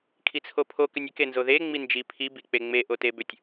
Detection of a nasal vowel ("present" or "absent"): absent